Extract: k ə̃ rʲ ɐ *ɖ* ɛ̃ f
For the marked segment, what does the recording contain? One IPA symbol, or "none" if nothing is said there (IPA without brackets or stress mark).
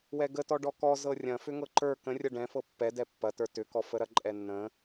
ɖ